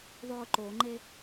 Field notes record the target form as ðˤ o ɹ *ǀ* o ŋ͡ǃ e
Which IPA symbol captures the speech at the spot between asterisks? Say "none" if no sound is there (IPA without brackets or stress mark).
ǃ